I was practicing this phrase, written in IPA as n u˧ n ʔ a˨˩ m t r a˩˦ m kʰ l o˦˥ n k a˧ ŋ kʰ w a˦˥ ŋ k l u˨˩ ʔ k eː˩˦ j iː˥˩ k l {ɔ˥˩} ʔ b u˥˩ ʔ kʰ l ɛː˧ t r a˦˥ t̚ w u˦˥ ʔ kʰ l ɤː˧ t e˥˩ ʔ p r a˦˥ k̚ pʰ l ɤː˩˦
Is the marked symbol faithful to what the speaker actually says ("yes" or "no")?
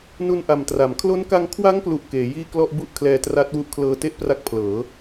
yes